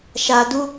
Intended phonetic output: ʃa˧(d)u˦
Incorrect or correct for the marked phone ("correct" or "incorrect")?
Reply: correct